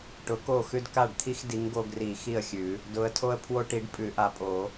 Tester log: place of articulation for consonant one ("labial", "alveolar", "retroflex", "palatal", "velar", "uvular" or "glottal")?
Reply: retroflex